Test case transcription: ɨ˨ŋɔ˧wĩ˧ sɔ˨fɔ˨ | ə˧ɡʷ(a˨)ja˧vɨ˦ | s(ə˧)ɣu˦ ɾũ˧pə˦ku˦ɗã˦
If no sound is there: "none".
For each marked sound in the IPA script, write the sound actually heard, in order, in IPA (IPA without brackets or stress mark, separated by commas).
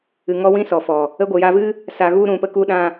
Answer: ə˨, a˧